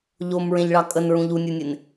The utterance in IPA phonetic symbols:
ʎ o m ɹ ẽ ʎ ɭ ɑ kʼ ə n ɹ ũ ʎ u nʲ ə˞ nʲ e n

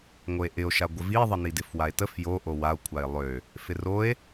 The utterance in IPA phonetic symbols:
ŋ o e̯ ʔ ɪ o̯ ʃ a ɡʷ ɪ v i ðˤ ə n i d ɪ f w a e̯ t ə f j o ʔ o w a o̯ kʷʰ a e̯ lˠ ø | f ɪ r o e̯

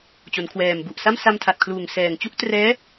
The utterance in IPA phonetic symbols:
t͡ɕ o˩˦ n kʰ w ɛː˨˩ m b u˨˩ ʔ s a˥˩ m s a˧ m tʰ a˨˩ t̚ kʰ l uː˨˩ ŋ s ɛː˨˩ ŋ t͡ɕ u˥˩ ʔ t r ɛː˦˥

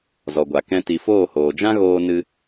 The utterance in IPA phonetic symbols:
z ɔ˨ ɡʷ a˨ k ɛ̃˧ t i˨ f oː˦˨ h oː˨ d͡ʒ ã˦ ɣ oː˧ n ɨ˧

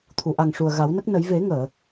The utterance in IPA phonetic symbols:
t̪ʰ u˨˩˨ ʔ a˨˩ ŋ ʂ u˨˩ ə̯ ɣ a˨˩˦ w n ə˦˥ k̚ n ə˨˩˦ j v e˨˩˦ ŋ əː˨˩˨

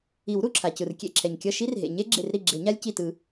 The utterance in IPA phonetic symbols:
i˨˩˦ w ɾ u˩ ǁʰ a˩ c ɯ˩ r kʲ ḛ˧˩ ǁʰ ɛ˩ ɲ kʲ ʌ˧˩ ʃ i˦˥ r ɦ ḛ˩ ɲ e˦˥ ɡ͡ǁ ḛ˧˩ r ɾ i˧˩ ɡ͡ǁ e˨˩˦ ɲ a˦˥ lʲ c i˧˩ t ɯ˨˩˦

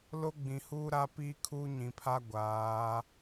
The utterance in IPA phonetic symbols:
l o˦ ɡ͡b ĩ˨ h uː˦ ɾ a˦ p iː˦ kʰ uː˦ ɲ ĩ˨ pʰ a˦ ɡʷ aː˨˦

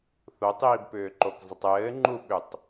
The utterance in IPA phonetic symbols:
θ o tˤ iː b p ʏː ǃ o k zˤ ɘ tˤ ɘː ŋ͡ǃ u ɓ ʏ tˤ

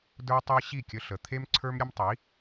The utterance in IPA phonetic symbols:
d ə˞˥ tˤ ɛ˥ ɕ i˥˩ kʲ ə˧ ɬ ə˩ t̪ʰ e˥ m ǀʰ ə˞˥ m ɾʲ ə˥ m tˤ i˩˥

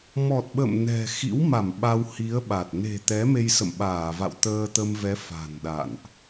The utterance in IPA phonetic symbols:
m ɔ˨˩ t̚ ɓ ə̰˧˨ m n ɛ̤˨˩ x ḭ˧˥ w m a˧˩ m ɓ a˧ w h i˨˦ ə̯ ɓ a˨˩ t̚ n e̤˨˩ t̪ ɛ˨˦ m e˧ j s ə̰˧˨ m ɓ aː˧˩ v a̰˧˨ w t̪ əː˧ t̪ ə˧ m v ɛ˨˦ f a̤˨˩ n ɗ a̰˧˨ n ʔ

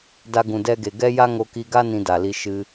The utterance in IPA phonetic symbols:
d a˧ ɡ ũ˨ d ɛ˧ ɡ e˨ ɡ ɛ˦ j a˦ ŋ o˧ k i˧ ɡ a˦ n ĩ˧ d a˨ l i˧ ʃ ɨ˧

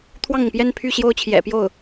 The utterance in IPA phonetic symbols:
t̪ʰ w ɑ˥˩ ŋ ʊ˩ ŋ p j ɛ˥˧ n pʰ y˥˩ ɕ j o˥ ʊ̯ t͡ɕʰ j ɛ̰˨˩ p j o˥˩ ʊ̯

